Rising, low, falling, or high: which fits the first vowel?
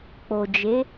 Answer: low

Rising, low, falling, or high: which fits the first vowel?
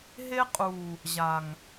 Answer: high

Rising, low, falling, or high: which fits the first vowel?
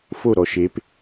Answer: falling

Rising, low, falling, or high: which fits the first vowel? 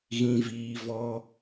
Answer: low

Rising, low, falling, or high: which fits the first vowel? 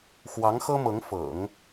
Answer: rising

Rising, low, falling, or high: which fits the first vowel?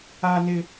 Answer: high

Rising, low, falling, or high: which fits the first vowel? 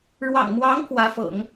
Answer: low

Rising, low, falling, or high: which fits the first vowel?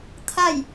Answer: falling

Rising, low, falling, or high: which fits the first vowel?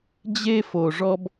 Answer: high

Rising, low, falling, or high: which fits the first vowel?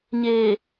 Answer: low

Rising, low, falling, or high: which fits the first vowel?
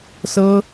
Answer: high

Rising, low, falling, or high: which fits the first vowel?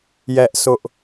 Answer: high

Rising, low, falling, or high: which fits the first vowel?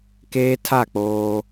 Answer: high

